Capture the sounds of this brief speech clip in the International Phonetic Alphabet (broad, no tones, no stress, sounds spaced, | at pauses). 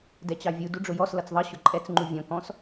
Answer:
d ɛ t͡ɕ ɑ vʲ u d u ɖ͡ʐ ʊ j ɔ s l ʌ t͡s ðˤ ʌ ɕ ʊ ǃʼ ɛ t͡s ŋ͡ǃ u vʲ ɔ̃ k ɔ̃ s